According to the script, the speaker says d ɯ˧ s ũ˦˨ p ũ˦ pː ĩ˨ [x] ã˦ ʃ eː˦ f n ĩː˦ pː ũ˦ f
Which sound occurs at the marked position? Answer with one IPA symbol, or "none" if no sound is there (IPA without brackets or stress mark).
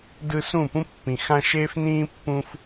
x